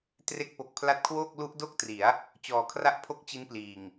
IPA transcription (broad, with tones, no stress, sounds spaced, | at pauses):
t r e˦˥ k̚ p o˨˩ k̚ pʰ l a˦˥ t̚ kʰ w oː˥˩ k̚ l u˦˥ ʔ d o˥˩ k̚ t r i˩˦ a̯ | t͡ɕ ɔː˨˩ kʰ r a˥˩ ʔ pʰ o˥˩ k̚ t͡ɕ i˦˥ n p l iː˨˩ ŋ